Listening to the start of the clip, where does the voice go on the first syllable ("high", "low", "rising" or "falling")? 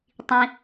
low